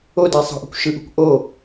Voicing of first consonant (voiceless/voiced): voiced